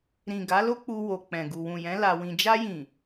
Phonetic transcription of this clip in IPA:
ɾ ĩ˨ ɡ a˨˦ l o˦ k͡p u˧ w o˨ k͡p ɛ̃˨ ɡ u˨ w ũ˨ j ɛ̃˨˦ l a˧ w ĩ˧ d͡ʒ a˧ j ĩ˨

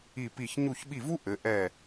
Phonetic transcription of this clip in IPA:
i˧˩ p i˧˩ ç ɲ u˧˩ ç ɓ i˧˩ v u˦˥ ʔ ɘ˩˧ ʔ ɛ˧˩

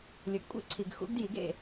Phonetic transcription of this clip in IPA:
lʲ ɵ˩˥ ɡ kʷʼ ḛ˦˨ ǀʰ i˨ ɡ x ṵ˦ ɡ d j i˩˥ ɡ ḛ˦˨

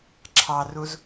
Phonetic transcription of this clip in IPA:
ǁʰ ɑ r u z

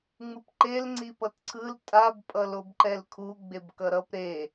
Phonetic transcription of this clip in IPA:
ŋ͡m ɯ p ǃ e l ŋ͡ǀ i p ʌ t ǀʰ ɯ l tʼ a b pʼ ʌ l o b ǃ ɛ l kʰ u ɡ͡b e b k ʌ ɾ ʌ p ɾ e

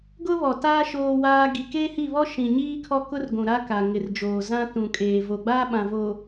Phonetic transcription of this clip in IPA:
ɡ ʊ˦ β ɔ˨ t aː˦ ʃ oː˦ w aː˦ ɡ i˨ k eː˦ h i˦˨ β ɔ˦ ʃ ĩ˨ ɲ iː˦ kʰ ɔ˦ k ʊ˦ r ɡʷ ũ˨ ɾ a˦ k a˨ ŋ ɪ˨ r d͡ʒ oː˨ z ã˦ t ũ˨ kʼ eː˨ v o˨ ɡ͡b aː˦ ɓ ã˨ v o˨

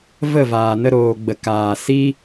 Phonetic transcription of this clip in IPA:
v ə˦˨ v aː˨ n ə˧ ɾ oː˨ ɡ͡b ə˨ k aː˨ s i˦

